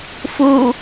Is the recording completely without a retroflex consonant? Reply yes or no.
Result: yes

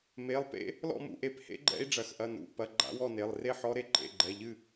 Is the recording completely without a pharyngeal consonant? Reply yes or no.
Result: no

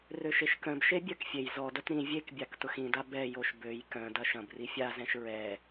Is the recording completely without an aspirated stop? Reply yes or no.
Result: yes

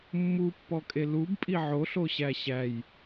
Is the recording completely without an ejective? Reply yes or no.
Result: no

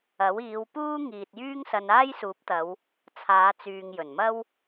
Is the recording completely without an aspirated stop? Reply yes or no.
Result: no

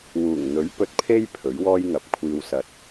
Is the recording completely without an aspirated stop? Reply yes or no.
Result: no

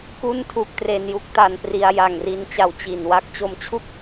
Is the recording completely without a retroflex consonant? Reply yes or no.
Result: yes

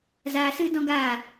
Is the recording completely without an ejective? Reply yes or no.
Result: yes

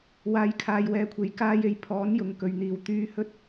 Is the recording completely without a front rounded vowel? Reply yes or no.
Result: no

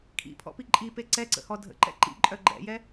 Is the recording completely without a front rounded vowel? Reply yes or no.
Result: no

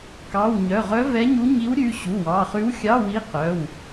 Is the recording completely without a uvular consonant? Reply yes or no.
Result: no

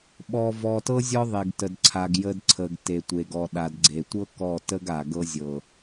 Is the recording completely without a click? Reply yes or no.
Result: no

